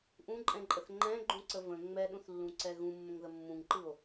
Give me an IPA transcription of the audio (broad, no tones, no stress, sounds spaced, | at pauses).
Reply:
ʔ ũ ǃʼ ɛ̃ ǃʼ ə θ ŋ͡ǃ ɛ̃ ɡ͡ǃ ũ ǀ ə v ə̃ ŋ͡m ɛ ɗ ũ θ lː ũ ǀ ɛ ɣ ũ mː ə̃ ŋ ð ə mː ũ ŋ ǃ ɯ o̯